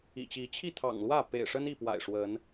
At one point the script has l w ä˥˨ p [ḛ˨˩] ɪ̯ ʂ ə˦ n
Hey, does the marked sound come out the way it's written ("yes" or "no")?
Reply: yes